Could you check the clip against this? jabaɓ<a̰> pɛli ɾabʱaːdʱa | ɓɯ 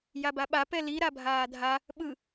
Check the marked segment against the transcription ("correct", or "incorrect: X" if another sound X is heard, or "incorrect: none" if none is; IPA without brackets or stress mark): incorrect: a